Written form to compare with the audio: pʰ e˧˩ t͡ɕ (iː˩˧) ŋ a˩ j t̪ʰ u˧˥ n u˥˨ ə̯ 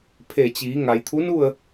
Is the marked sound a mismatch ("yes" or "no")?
no